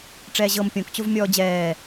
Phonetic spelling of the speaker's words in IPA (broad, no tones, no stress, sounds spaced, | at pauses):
ʈ͡ʂ ɛː ʑ ɤ m pʲ õ k t͡ɕ o v mʲ ɔː d͡ʑ ɛː